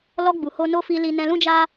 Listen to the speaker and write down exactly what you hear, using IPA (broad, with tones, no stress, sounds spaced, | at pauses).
l ɔ˧ ɡ͡b u˨ h o˧ n o˧ f i˧ l i˧ n ɛ̃˧ l ũ˦ d͡ʒ a˦